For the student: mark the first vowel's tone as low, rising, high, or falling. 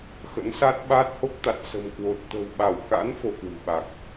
rising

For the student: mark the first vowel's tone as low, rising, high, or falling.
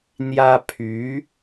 high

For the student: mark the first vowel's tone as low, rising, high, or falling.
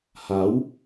rising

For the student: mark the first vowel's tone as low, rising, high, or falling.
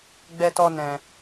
high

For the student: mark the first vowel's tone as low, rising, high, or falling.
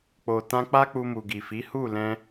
low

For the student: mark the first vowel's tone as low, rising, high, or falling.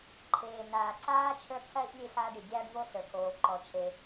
low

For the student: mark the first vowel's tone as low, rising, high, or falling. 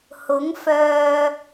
rising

